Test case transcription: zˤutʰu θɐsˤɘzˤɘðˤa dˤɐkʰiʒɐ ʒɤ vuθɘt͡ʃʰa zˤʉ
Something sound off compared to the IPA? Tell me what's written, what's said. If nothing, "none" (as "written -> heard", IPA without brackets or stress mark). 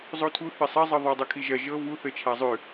none